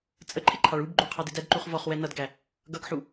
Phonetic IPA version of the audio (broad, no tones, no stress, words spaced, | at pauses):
t͡sʼəǃʰɪǃʰɑɭ ubɡ͡ǃuqʰɑdɪ dædǃuχvɔχwɛ nʌdɡæ | ɡʌɡħu